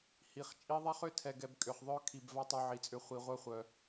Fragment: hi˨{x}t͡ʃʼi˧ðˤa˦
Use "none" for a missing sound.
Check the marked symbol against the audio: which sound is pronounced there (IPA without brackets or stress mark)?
χ